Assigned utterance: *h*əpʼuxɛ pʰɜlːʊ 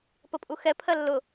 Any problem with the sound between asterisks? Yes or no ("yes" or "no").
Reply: yes